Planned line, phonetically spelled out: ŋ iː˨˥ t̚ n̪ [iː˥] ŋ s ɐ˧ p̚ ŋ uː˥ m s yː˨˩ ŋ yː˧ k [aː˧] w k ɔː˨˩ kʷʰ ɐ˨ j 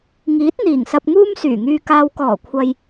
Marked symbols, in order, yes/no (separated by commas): no, yes